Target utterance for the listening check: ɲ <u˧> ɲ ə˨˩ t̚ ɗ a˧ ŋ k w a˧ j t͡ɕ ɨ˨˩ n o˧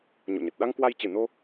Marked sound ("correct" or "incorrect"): incorrect